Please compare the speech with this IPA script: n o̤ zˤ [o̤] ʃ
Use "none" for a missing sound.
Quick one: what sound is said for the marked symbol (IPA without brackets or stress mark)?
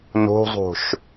o̤